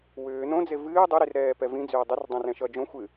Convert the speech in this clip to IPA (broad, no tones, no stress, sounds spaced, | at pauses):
w ʏː n õ d͡z e v ɨː dˤ ʏ ɾ i r ɾ ɛː p ɛ v ĩ d͡z ʏː dˤ ʏ r dˤ õ r ɛ̃ ʃ ʌ d͡ʒ õ xʷ ɨ